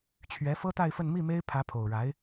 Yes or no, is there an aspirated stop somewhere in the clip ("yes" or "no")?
yes